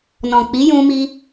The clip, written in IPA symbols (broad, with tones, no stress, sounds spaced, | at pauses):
n ɔ̃˨ k͡p i˨˦ j ũ˧ m i˧